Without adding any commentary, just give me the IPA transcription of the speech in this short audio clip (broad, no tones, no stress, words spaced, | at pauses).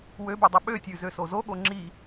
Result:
wøbidˤø ɓøtʲʉzøso zoɠo ŋ͡ǁi